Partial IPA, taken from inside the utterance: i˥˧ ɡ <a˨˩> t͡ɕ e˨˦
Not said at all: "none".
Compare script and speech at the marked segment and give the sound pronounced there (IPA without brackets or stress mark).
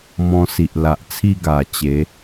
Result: a˨˩